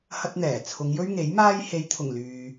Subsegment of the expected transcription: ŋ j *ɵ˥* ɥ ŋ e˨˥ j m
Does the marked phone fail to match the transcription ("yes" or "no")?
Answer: no